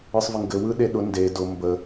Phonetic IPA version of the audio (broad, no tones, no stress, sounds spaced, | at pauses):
ɯ sˤ v ɘ ŋ ɡ ɘ w ɯ ɗ e ɗ ʊ n d e d ʊ m b ə